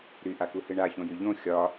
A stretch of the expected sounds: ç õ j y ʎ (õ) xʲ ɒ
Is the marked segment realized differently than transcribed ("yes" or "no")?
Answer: no